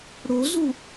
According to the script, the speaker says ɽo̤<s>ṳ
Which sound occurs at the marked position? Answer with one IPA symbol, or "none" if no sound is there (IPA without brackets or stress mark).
z